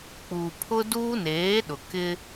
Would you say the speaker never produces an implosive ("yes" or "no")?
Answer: no